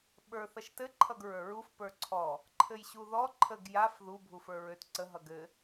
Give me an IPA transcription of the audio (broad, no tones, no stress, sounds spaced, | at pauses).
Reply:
ɓ ə˞ θ ʌ ʃ t ɘ ǃʰ ʌ ɡ ɹ ə˞ ɹ u f p ə˞ ǀʰ ɔ | ǃʰ ɘ j ɕ u ð ɔ ǃʰ ə ɡ j a f ð u bʱ u f ə˞ ɹ ø t ǀ ə ɦ ʌ ɡ ɘ